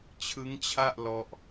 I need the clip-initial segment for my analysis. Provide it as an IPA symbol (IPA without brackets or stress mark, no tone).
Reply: t͡ɕʰ